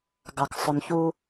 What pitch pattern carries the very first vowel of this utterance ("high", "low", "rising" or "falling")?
low